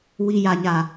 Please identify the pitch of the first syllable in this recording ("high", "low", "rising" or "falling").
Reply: low